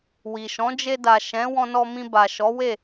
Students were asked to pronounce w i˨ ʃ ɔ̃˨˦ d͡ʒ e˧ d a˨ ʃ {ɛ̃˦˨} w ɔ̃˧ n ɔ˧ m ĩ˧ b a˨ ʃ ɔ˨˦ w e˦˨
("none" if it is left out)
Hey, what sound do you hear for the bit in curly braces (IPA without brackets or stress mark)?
ɛ̃˨˦